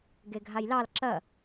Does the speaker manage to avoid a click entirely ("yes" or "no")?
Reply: no